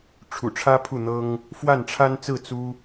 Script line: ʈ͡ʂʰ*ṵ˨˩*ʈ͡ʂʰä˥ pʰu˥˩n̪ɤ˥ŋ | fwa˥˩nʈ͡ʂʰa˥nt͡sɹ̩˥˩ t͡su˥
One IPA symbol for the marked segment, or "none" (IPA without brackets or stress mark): ṵ˨˩